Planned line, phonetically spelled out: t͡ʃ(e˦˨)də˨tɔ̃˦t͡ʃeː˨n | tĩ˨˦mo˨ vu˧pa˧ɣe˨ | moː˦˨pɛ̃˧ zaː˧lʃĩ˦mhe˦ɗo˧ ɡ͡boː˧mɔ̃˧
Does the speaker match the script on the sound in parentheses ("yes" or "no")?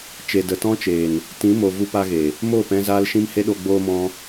no